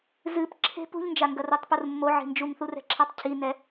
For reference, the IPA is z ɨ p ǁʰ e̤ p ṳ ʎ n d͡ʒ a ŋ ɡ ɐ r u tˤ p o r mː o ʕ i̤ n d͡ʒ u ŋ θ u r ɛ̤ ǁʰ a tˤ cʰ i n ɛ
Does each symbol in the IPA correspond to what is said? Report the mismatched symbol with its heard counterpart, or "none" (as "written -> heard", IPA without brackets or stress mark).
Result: none